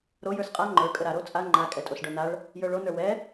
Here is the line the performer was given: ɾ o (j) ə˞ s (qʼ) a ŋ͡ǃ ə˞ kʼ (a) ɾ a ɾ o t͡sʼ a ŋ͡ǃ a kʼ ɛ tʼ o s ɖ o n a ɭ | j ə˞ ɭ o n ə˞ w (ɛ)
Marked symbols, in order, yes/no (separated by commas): yes, yes, no, yes